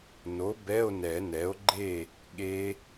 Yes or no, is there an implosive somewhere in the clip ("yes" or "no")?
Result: yes